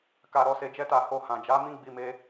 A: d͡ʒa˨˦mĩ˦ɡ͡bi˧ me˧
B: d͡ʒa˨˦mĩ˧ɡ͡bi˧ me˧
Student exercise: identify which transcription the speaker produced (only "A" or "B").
A